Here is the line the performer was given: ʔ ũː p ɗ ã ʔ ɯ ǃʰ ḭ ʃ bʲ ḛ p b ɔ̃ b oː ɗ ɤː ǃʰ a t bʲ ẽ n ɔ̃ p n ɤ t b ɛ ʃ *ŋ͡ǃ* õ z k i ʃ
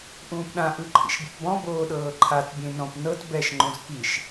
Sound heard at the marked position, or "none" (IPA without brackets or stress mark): ŋ͡ǃ